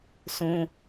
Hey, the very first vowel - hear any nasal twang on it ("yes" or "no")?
yes